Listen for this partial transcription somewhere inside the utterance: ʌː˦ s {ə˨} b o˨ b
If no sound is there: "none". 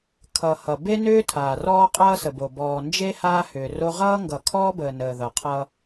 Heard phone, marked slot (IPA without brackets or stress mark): ə˨